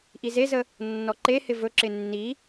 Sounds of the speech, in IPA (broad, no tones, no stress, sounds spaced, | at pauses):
ʔ i z e z ə | nː ɔ ǃ e h ɪ v ɵ ǁ ɪ nː i